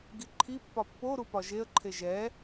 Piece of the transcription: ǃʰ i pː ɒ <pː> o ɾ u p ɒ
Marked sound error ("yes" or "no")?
no